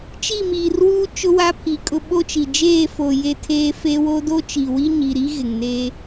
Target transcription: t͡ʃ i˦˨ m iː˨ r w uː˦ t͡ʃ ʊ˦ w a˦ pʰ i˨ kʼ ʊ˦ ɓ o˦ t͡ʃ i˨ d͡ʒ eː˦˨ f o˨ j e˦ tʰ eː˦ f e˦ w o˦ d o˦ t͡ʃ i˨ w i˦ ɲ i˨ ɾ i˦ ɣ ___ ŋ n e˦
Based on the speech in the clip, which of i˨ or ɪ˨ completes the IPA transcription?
ɪ˨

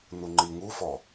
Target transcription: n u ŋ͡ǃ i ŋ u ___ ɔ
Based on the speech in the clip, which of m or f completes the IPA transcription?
f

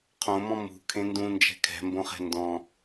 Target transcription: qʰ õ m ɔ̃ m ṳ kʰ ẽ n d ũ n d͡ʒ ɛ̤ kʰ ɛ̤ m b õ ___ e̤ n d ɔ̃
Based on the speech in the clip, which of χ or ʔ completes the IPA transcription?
χ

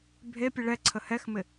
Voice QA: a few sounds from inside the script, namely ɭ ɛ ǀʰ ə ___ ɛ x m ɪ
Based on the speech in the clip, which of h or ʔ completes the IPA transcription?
h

